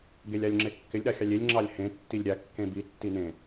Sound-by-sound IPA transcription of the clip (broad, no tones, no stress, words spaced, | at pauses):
ɡelʲalʲŋ͡ǁekːɪlʲ ɗaxʲɑlʲelʲ ŋ͡ǁɑlʲhẽ tːilʲɾʲa kːẽbi tːinẽ